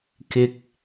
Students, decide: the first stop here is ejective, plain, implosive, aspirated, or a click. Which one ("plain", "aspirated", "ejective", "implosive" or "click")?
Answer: plain